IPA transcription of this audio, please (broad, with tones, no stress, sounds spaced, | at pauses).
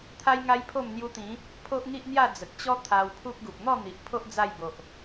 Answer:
t̪ʰ a˦ j ŋ a˦ j pʰ o˥˧ m n̪ j u˧ t̪ ĩ˨˦ | pʰ o˦ ʔ ŋ i˦ ʔ n̪ j a˥˧ d͡z ə˨ k̚ t͡ɕ ɔ˦ t̪ʰ a˧ w pʰ u˦ k̚ ɡ u˨ p̚ n̪ ɔ˥˧ n̪ i˨ ʔ pʰ o˦ ʔ d͡z a˥˧ j b o˨ ʔ